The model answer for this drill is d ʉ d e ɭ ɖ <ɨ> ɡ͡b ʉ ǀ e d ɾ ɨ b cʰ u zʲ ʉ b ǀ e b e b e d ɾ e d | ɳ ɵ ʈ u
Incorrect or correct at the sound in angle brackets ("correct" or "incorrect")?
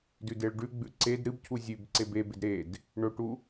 incorrect